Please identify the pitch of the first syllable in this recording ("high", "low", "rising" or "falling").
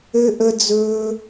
high